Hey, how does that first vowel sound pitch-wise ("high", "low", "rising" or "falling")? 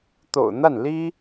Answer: low